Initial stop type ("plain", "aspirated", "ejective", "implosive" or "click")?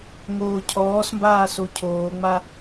aspirated